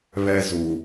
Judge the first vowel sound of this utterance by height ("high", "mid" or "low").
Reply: mid